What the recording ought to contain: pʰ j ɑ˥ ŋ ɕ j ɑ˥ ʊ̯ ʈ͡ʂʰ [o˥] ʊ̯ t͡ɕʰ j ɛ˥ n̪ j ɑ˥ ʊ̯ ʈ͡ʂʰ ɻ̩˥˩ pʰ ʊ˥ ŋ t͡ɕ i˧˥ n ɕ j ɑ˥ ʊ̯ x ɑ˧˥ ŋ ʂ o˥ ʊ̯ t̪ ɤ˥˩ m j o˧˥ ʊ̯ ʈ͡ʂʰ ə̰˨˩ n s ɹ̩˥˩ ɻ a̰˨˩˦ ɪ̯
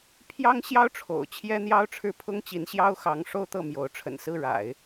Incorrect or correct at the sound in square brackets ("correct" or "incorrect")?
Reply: incorrect